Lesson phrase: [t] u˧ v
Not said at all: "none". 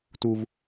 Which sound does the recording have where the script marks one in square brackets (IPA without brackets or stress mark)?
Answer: t